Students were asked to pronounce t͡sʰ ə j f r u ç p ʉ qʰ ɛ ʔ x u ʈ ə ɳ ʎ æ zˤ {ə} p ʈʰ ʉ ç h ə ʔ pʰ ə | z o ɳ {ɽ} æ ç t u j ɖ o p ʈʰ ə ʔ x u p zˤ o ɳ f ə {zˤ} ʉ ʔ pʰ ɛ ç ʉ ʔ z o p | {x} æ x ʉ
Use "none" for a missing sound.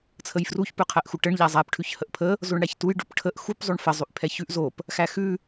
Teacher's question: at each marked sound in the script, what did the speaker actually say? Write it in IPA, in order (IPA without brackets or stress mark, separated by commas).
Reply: æ, ɽ, zˤ, x